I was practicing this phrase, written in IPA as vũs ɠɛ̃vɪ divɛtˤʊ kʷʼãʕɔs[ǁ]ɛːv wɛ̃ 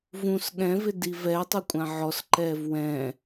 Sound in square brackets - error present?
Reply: yes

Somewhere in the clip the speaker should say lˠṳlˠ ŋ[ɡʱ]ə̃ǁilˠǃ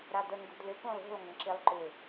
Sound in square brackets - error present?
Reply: yes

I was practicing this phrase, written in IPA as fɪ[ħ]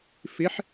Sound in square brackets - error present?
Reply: no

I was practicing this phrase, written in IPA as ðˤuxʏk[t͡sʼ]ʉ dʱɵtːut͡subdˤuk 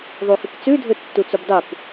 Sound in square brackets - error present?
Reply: yes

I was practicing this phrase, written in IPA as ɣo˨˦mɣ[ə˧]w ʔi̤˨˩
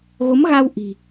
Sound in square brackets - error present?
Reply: yes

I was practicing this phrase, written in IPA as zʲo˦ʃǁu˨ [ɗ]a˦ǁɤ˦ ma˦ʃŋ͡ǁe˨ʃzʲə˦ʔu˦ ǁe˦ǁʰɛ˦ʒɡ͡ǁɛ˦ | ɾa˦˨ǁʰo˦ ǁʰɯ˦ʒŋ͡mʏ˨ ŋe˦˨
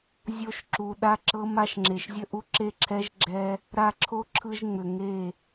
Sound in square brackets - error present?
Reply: no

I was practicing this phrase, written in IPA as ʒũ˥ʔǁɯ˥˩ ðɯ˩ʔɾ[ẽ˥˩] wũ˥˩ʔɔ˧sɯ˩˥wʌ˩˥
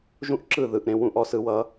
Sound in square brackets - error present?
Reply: no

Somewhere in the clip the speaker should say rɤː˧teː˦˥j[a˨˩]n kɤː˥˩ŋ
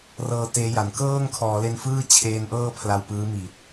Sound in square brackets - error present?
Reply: no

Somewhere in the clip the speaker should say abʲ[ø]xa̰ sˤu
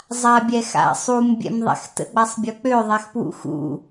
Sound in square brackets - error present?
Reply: yes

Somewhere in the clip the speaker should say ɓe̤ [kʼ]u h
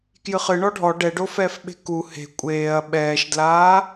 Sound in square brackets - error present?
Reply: yes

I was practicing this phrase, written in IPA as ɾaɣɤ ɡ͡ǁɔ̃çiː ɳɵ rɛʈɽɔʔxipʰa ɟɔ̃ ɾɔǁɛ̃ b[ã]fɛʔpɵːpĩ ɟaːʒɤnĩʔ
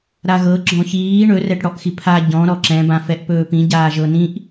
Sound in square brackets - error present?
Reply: no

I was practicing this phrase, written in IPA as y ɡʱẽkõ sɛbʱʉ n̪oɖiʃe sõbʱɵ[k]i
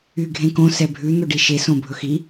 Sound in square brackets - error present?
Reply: yes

